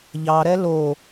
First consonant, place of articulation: palatal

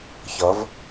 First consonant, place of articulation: palatal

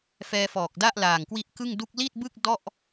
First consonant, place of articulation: labial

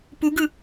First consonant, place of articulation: labial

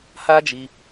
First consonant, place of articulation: glottal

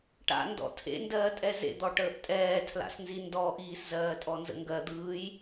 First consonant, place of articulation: retroflex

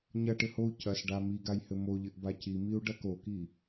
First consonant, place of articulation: palatal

